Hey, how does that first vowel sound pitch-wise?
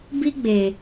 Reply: high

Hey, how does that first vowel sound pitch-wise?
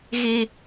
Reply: high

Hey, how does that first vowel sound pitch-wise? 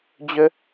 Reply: high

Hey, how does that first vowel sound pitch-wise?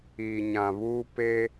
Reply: low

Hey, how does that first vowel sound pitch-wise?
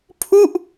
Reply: falling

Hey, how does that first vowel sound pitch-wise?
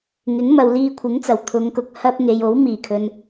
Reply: rising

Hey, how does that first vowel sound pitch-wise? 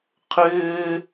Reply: high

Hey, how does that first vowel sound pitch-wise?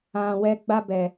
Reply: low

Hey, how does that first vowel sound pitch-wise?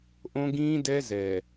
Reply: high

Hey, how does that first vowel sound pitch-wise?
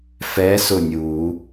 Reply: rising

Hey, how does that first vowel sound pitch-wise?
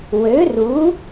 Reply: rising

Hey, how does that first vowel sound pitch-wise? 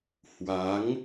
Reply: rising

